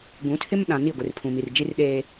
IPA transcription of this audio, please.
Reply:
ɡ ũ˨˦ tʰ ɪ˦ m ɗ ã˨ n i˦˨ ɡʷ ɪ˨ r pʰ ũ˨ m i˨ r d͡ʒ i˦ r ɗ eː˦

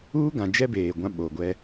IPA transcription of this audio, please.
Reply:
uː˦ ɡ ã˨ d͡ʒ ɛ˦ b eː˨ ɡʷ ã˦ ɓ o˨ ɡʷ ɛ˦

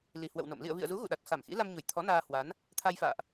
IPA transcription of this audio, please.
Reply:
l i˨˩ h w ə̰˧˨ w n o̰˧˨ m l ḭ˧˨ ə̯ v ḭ˧˨ ə̯ z u˨˦ ɣ ṵ˧˨ ɗ a˨˩ t̚ x a˧˩ m x ḭ˧˥ l a˧ m ɲ u˧˩ j t̪ʰ ɔ˨˦ n aː˧ h w a˨˦ n | t̪ʰ a˧ j f a̰ː˧˨ ʔ

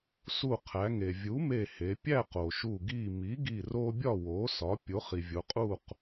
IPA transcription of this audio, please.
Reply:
s u˧˩ qʰ æ˩˧ ŋ e˩ vʲ u˩˥ m e˧˩ h e˩˧ pʲ æ˥˨ q o˩ ʃ u˧˩ ɡ i˧˩ m i˩˥ ɡ i˧˩ r o˦ bʲ ɒ˥˨ w o˩˥ s ɒ˩˥ pʲ o˩˥ χ i˩ vʲ o˩˧ qʼ u˥˨ q

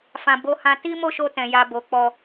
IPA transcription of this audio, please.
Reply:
f ã˨ b o˨˦ h ã˧ t i˦ m o˦˨ ʃ o˧ t ɛ̃˨ j a˧ b o˨ k͡p ɔ˨

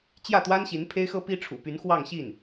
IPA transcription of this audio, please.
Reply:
t͡ɕ j ä˥˩ t̪ w a˥ n ɕ i˧˥ n pʰ e˥ ɪ̯ x ɤ˥ p i˥ ʈ͡ʂʰ ṵ˨˩ p y˧˥ n x w ɑ˥˧ ŋ ɕ i˥˩ n

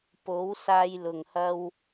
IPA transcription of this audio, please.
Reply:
p o˨˥ w s aː˧ j l ʊ˨˩ ŋ h ɐ˧ w

